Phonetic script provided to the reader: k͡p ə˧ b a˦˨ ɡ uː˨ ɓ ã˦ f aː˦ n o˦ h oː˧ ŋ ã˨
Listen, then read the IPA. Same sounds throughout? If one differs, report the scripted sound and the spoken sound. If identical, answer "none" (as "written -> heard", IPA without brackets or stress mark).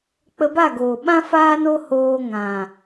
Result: uː˨ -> oː˨